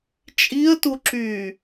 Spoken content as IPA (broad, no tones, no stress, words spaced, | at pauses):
t͡ʃʼiə̯tuǁyː